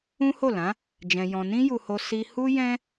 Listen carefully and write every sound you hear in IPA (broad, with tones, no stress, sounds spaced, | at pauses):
ũ˦ h o˦˨ l ã˨˦ | d͡ʒ ɛ̃˧ j ɔ̃˧ n ĩ˦ j u˧ h o˧ s i˧ h u˦ j ɛ̃˦